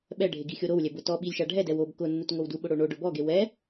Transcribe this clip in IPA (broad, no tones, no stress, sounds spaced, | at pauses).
ɓ ɛ ɖʱ e ɡ i xʲ o ɾ o w lʲ ɛ b ʊ t ɔ ɓ i lʲ ʃ a ɖʱ ɛ d ɛ w o b k ʊ nː u t ŋ o w d u ɓ ʊ ɽ o ɳ o ɖ ʊ b ɔ ɡ e w ɛ